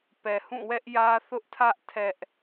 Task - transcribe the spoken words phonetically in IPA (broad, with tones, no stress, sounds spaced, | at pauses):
p ɛ˨ h ũ˦˨ w ɛ˦ ʔ j ä˦ θ ʊ˦ ʔ tʰ ä˦ ʔ tʰ ɛ˦ ʔ